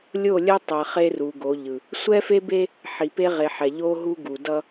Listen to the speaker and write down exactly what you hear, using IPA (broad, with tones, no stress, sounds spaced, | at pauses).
lʲ o˦˨ lʲ ɛ˦ tˤ ɛ˨ χ e˦ r u˨ ɡ o˨˦ ʎ ɯ˨ | sʷ ɛ˦ f e˦ b e˦ | ħ i˨ p e˦ ʁ e˨ ħ ɛ˨ ʎ o˦ ɦ u˦ ɡ u˨ d ʌ˦